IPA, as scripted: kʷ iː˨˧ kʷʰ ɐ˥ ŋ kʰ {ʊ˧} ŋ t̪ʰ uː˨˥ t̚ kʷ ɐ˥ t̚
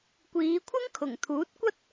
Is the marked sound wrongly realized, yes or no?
yes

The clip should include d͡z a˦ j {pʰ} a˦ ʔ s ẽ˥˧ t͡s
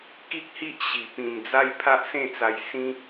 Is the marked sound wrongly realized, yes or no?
no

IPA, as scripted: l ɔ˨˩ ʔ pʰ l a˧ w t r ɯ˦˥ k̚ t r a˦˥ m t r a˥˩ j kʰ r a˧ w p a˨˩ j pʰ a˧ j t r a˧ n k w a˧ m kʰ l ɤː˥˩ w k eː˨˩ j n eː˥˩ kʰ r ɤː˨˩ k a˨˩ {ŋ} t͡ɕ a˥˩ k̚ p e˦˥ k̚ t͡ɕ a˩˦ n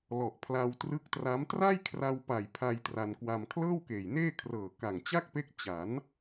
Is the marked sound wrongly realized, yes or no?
no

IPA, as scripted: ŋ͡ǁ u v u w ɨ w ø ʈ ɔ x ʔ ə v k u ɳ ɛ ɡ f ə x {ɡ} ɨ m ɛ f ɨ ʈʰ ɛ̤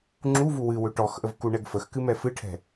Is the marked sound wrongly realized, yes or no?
yes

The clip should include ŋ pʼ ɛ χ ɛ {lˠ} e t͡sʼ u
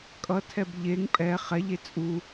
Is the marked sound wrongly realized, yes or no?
yes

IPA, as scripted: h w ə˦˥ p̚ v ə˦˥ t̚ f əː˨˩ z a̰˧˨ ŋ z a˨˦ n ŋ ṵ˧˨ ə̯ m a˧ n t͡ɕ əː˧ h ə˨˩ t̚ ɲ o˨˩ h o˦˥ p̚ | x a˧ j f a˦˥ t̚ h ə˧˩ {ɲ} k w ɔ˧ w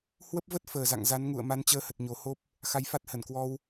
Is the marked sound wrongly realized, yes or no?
yes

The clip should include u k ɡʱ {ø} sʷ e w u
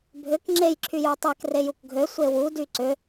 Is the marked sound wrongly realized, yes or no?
no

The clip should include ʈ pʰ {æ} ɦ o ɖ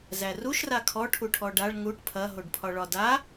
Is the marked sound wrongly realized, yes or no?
yes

